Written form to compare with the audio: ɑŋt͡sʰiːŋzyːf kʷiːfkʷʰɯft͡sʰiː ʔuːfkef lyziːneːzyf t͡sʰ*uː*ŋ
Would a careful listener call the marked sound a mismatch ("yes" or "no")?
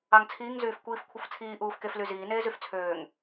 yes